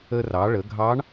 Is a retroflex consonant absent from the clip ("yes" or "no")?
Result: no